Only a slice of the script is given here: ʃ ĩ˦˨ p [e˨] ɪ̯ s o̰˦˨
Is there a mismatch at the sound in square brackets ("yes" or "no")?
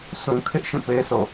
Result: yes